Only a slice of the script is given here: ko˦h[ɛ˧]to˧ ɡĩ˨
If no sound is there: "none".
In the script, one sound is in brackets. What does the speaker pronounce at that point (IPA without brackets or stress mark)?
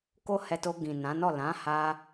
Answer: ɛ˧